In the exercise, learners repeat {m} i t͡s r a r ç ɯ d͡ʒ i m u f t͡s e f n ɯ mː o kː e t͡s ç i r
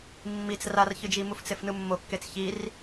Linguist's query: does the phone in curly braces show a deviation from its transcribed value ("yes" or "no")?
yes